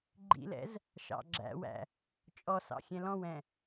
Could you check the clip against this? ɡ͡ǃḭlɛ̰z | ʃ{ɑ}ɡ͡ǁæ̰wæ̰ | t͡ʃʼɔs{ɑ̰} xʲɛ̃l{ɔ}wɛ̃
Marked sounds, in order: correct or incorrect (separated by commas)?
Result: incorrect, correct, incorrect